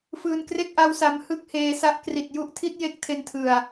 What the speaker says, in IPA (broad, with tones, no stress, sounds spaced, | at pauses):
f ɯː˧ n k r e˥˩ k̚ ʔ a˦˥ w s a˧ m h ɯ˥˩ k̚ h eː˧ s a˦˥ ʔ k r i˨˩ t̚ j u˦˥ ʔ tʰ i˦˥ t̚ j e˦˥ k̚ tʰ e˧ n tʰ ɯ˨˩ a̯